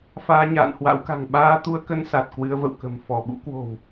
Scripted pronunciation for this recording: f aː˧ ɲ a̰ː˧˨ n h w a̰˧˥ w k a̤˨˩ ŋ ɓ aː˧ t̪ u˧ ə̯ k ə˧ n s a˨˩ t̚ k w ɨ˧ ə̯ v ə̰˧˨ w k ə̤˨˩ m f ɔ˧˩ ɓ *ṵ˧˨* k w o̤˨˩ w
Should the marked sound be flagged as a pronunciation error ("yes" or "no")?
yes